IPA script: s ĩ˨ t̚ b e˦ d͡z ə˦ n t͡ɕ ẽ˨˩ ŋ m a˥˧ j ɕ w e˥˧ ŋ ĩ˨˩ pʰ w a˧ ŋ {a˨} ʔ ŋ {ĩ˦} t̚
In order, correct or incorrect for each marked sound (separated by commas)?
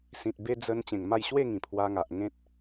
correct, incorrect